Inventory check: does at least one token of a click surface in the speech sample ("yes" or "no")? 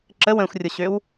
yes